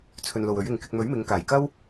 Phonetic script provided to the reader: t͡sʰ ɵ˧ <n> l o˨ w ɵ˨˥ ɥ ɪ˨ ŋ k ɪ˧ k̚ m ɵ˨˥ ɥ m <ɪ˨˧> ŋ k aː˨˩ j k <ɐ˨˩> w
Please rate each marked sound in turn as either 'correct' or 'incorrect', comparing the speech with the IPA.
correct, correct, incorrect

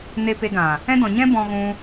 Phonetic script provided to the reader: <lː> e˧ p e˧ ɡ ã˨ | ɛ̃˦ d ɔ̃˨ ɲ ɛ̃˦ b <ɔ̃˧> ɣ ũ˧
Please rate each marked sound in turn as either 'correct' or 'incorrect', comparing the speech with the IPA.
incorrect, correct

